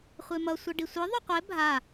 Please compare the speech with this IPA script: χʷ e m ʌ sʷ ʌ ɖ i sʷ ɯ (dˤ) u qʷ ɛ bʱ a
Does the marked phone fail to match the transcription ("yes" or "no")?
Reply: yes